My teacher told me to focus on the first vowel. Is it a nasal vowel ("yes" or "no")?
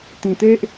yes